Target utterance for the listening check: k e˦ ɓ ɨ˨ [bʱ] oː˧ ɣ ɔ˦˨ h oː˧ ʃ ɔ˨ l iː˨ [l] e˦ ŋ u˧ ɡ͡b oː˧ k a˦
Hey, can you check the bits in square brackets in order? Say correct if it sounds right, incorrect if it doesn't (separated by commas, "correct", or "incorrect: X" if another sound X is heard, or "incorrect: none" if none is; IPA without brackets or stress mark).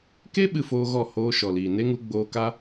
incorrect: f, incorrect: n